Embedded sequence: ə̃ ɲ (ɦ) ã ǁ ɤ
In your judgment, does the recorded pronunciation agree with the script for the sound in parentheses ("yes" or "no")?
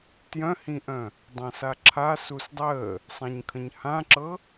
no